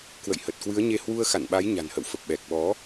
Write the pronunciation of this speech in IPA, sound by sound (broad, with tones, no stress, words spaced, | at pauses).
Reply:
kwə̰˧˨jhə˨˩t̚kwɨ˨˦ə̯ɲe˧ hwu˧ə̯xa̰˧˨nɓa˨˦j ɲa̤˨˩nhə̰˧˨wfə˨˩p̚ ɓɛ˨˩k̚ɓɔ˨˦